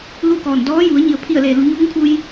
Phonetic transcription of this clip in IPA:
lu˥˨kɔː˧˩n dɔː˧˥ju˩˧ə̯ɲi˩ə̯ pʰi˧˩ə̯le˩ lu˩˧ɲuː˧˥ŋkʰu˧j

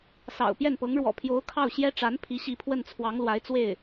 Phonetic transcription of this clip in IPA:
sɑ̰˨˩ʊ̯pjɛ˥˩npɤ˧˥ŋ ɻwɔ̰˨˩pʰjo˧˥ʊ̯ kʰɑ˥˩ʊ̯ɕjɛ˥ ʈ͡ʂa˧˥npʰi˧˥ ɕi˧˥pʰwə˥˩nt͡sʰwɑ˧˥ŋlwa˧˥ɪ̯ t͡swe˥˩ɪ̯

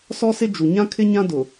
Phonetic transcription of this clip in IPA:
sɔ˦sɪ˦ d͡ʒu˨ɲã˦ kʰɪ˦ɲã˦dʊ˨

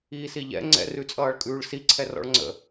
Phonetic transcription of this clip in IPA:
iːsiʎɛ̰ ŋ͡ǀɛ̰ rʉt͡sʼʌːɭkʼʉːɭsi ǀʰɛrɔ̰ɭŋ͡ǀə̰

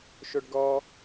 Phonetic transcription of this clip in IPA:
ʃoɖɡɔ

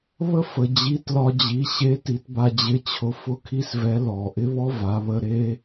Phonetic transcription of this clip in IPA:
βə˥fə˩ d͡ʑi˧˥tlɒ˧d͡ʑi˩˧ ɕe˧˥ti˩˧tba˧ d͡ʑɪ˧˥t͡ɕʰʊ˧ fʊ˥kʰi˥svɛ˧˥ lɔ˩ʔɪ˥βɔ˥ va˩˧βə˧ ɾe˥

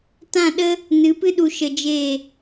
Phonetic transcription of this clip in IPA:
tã˦˨ɗə˦ | nɨ˨˦pɨ˦ɗu˧ ʃə˧d͡ʒe˦˨

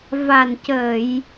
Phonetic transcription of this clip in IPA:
va˨˩ncə˨˩˨j

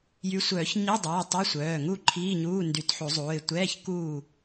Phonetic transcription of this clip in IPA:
jy˨˦sʷœː˨˩˦ç ɲi˧˥˧dˤɛː˩˧˩ tˤɛ˧˥˧sʷœː˩˧˩ ŋu˥˨ǃʰiː˧˥˧ɲuː˧˥˧ ndy˨˩˦tħu˨˩˦zˤuː˩˧˩ɪ̯ tʷɛː˧˥˧ç kuː˥˨

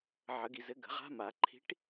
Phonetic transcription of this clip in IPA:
ʕə˨˩˦ɡi˨zɘ˨˥ ɡə̤˨˩˦ʁa̤˦˥ma˨˩˦ ǃʰi̤˨˥ʈ

